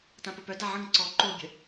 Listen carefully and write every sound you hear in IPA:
t ã p ə p œ d a ʕ ə̃ ŋ ǀ ɔ ǃ o bʲ ə̤

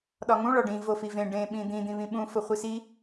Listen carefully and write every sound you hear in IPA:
ɗ ɒ ŋ ũ ɭ ɒ ɖ ĩ v o f i v ẽ ɖ ẽ ɓ ĩ d̪ ĩ d̪ ĩ β ĩ ɓ ũ f o χʷ i s i

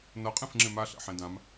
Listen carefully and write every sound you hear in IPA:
n ʌ qʼ ẽ f ŋ͡ǁ ẽ m a ɬ ɛ̰ ħ ẽ d ã m

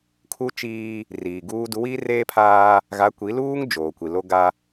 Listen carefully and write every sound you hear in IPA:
kʰ u˦ t͡ʃ iː˦ | r iː˨ ɡ uː˦ d u˨˦ w iː˦ r eː˦ pʰ aː˦ | ɣ a˨˦ kʷ i˨˦ l uː˦ ŋ d͡ʒ oː˨ kʷ i˨ l o˦ ɡ a˦

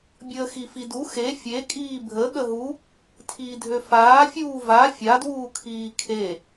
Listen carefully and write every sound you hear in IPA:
bʲ əː x i f i d u x e fʲ e kʼ iː bʱ ə ɠ ə ɦ u | tʰ iː dʱ ø f aː fʲ uː v a fʲ a d w uː kʰ iː kʰ e

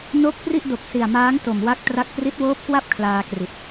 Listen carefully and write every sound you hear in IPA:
n o˦˥ k̚ p r i˥˩ ʔ d o˨˩ k̚ s i˨˩ a̯ m aː˦˥ ŋ t o˨˩ m w a˦˥ k̚ t r a˦˥ k̚ p r i˦˥ t̚ w oː˦˥ p̚ k w a˥˩ p̚ kʰ l aː˧ k r i˨˩ t̚

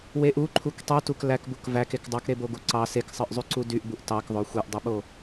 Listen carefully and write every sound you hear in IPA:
w e ʔ u ǃʰ u k tˤ y t u k l æ k b u k v æ k e k dˤ ɑ k ɾ e b o ɡ u ǀ ɑ s e k sˤ ɯ ʔ zˤ y ǀ u d y ʔ b u ʔ t ɑ k ðˤ o xʷ e ʔ dˤ ɯ ɓ o

